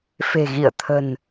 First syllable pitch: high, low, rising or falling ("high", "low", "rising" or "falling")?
low